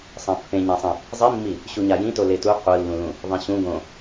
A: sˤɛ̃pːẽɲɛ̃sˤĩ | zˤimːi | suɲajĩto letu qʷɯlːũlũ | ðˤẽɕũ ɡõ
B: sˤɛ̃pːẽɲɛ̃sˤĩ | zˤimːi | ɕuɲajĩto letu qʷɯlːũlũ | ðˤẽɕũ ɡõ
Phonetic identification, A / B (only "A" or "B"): B